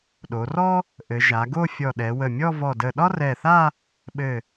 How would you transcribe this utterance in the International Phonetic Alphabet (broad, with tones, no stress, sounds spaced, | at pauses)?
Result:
ɗ o˩˧ r ɔ˥ | ʔ ɘ˩˧ ʒ a˩˧ ɡ o˥˧ fʲ ɔ˧˩ ɗ ɛ˩˧ w ə˧˩ mʲ ɔ˥˧ v ɔ˧˩ d ə˧˩ ɗ ɒ˥ r ɛ˧˩ θ a˥˧ | ɓ ɘ˧˩